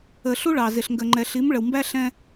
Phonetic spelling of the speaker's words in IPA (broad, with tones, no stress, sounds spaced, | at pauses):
ə˨ ɬ u˦ ɭ ɑ˨ z ɪ˨ ɬ ŋ ɡ ə˨ ŋ͡ǃ ɛ˨ ɬ i˨˦ m ɭ ə˨ w m b æ˦ ɬ ɛ̃˦